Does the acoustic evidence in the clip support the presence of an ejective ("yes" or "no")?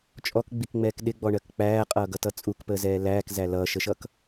yes